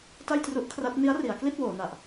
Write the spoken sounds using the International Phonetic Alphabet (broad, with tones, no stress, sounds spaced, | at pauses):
t a˥˩ j t r u˦˥ ʔ kʰ r a˦˥ t̚ n i˦˥ a̯ r i˩˦ a̯ k l i˥˩ t̚ w oː˩˦ n a˨˩ ʔ